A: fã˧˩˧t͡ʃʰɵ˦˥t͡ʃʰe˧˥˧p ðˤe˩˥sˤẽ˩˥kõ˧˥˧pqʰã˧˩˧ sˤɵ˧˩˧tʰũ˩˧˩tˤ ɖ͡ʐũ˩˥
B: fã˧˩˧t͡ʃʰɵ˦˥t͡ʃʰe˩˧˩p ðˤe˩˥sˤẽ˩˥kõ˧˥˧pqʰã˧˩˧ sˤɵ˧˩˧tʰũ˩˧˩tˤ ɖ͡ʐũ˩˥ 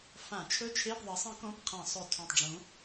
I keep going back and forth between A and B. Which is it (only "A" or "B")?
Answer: A